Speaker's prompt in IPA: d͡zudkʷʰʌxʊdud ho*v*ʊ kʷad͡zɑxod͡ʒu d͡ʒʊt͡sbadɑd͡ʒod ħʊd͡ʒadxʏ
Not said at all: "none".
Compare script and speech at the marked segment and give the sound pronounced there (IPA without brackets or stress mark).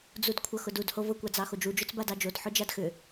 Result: v